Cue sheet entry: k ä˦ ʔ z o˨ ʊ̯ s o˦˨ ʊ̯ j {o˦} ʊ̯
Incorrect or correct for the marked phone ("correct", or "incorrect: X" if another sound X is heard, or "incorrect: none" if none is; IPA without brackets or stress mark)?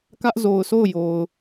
incorrect: o˨